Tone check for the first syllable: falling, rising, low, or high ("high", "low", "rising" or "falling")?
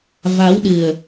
rising